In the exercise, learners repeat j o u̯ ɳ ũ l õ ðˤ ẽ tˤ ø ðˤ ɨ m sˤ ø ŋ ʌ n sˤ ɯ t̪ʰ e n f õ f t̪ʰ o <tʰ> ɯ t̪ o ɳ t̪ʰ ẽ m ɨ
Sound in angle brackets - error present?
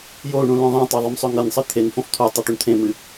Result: yes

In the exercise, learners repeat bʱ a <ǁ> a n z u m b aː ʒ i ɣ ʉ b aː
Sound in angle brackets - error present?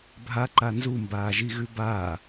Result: yes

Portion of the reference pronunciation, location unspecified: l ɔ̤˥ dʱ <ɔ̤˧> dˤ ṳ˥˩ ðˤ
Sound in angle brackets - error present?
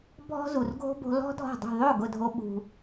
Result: yes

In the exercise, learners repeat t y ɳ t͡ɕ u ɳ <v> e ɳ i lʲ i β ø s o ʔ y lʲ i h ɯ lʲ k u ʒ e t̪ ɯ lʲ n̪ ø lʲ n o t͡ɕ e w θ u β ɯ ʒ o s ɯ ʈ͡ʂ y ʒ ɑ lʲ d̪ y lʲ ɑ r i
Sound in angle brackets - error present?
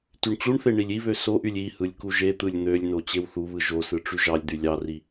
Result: yes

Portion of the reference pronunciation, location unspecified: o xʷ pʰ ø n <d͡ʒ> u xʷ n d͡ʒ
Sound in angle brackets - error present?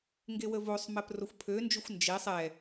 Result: no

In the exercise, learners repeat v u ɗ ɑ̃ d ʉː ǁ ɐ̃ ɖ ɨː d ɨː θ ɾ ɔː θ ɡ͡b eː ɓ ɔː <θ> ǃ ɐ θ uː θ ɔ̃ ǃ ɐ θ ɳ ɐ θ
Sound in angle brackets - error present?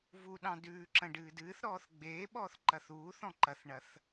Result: no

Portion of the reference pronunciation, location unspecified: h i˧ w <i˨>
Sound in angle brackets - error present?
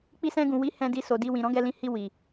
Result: no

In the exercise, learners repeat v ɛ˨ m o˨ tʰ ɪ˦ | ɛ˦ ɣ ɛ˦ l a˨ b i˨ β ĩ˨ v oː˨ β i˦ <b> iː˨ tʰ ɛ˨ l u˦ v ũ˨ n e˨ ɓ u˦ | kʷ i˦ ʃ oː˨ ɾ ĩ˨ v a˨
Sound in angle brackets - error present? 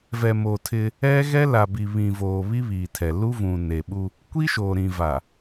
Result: yes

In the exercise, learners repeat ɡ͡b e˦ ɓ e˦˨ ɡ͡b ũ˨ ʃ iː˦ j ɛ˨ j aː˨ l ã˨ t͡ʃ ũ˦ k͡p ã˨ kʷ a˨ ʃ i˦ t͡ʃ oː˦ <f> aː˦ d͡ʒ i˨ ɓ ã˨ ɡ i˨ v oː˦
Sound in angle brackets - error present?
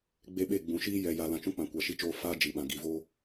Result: no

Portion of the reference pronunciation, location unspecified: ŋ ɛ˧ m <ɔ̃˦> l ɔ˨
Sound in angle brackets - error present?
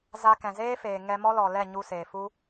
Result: yes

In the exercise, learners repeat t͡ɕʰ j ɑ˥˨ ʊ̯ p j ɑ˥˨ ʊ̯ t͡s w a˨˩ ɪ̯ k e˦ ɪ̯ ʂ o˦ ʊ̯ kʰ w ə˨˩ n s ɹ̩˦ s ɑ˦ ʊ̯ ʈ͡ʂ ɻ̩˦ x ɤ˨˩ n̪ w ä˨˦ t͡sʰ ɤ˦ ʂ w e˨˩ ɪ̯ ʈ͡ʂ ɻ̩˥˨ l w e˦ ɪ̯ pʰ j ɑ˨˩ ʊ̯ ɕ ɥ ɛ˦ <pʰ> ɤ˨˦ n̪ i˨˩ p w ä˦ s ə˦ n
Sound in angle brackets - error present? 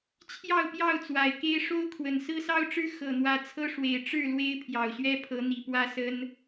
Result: no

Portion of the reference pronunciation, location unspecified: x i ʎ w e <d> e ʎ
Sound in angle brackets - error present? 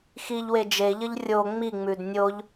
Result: yes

